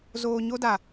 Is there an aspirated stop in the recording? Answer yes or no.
no